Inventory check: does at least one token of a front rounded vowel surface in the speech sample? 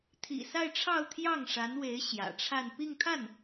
no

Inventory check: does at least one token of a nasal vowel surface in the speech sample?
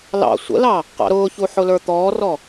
no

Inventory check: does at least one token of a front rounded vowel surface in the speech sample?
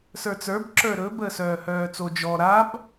yes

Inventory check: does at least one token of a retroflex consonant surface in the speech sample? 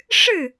yes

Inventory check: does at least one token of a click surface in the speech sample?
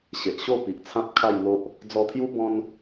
no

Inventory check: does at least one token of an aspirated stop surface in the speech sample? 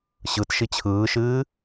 yes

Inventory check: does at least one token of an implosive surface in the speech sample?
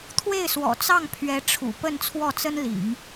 no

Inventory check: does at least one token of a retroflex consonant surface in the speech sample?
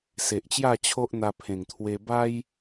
no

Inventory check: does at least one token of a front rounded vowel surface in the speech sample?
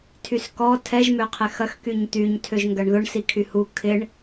yes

